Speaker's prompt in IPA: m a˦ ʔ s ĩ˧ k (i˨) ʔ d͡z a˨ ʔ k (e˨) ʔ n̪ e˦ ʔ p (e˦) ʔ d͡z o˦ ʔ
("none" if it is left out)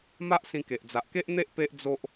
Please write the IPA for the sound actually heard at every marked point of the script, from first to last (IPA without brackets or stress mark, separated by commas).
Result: e˨, e˦, e˦